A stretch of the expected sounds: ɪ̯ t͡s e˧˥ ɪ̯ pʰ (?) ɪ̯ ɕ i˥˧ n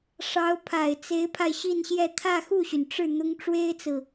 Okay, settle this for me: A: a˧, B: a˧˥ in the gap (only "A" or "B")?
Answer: A